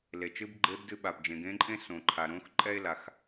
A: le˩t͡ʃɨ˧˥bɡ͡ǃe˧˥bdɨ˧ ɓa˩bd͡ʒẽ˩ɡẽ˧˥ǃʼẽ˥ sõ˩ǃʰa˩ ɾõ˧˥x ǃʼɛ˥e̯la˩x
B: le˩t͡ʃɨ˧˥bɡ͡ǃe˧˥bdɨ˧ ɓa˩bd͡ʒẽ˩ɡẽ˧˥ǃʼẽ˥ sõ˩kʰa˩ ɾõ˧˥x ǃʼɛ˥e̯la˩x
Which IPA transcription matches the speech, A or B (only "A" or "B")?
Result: A